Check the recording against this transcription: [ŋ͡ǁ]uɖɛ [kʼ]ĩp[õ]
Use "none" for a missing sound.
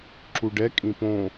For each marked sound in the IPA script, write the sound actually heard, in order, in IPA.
ǁ, kʼ, õ

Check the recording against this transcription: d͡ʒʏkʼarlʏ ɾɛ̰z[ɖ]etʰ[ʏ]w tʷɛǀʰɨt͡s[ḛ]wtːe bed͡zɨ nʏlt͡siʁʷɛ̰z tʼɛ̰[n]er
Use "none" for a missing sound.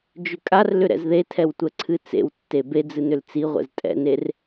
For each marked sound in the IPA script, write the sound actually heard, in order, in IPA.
ð, ɛ, ḛ, n

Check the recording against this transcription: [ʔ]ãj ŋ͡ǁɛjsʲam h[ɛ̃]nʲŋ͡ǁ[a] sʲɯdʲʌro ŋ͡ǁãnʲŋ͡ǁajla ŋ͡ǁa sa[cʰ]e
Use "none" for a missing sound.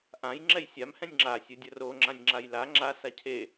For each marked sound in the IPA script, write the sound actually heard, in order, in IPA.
ʔ, ɛ̃, a, cʰ

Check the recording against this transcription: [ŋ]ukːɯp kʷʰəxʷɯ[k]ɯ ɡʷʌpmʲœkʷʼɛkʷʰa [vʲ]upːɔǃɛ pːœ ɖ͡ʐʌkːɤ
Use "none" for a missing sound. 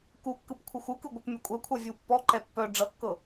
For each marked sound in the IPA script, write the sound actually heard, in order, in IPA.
k, k, vʲ

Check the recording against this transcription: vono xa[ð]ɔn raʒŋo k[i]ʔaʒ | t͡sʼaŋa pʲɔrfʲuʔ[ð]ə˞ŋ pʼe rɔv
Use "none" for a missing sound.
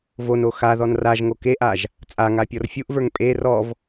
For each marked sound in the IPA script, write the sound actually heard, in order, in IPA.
ð, e, v

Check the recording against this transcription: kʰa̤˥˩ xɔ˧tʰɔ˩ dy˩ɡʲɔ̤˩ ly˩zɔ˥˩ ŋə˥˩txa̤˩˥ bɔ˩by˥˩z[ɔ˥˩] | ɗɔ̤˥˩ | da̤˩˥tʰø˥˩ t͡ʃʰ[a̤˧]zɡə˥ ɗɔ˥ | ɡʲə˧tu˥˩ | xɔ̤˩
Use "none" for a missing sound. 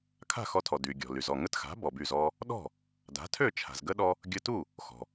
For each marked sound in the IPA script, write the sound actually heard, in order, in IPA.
ɔ˥, a̤˩

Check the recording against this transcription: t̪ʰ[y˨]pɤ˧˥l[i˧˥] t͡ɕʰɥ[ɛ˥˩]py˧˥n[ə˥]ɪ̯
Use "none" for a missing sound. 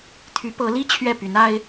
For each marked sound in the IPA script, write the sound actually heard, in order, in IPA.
y˧˥, i˥, ɛ˥˩, a˥

